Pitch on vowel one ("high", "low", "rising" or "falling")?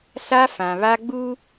high